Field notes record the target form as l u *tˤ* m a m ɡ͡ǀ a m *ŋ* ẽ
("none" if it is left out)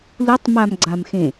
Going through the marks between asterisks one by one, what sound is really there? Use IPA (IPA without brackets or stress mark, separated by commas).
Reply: tˤ, x